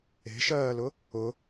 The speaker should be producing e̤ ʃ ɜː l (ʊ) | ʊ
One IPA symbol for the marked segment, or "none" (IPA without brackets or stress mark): ʊ